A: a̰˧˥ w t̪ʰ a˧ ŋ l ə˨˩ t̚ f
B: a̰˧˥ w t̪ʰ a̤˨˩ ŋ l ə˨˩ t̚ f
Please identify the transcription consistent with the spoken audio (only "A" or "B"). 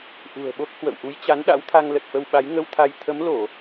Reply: A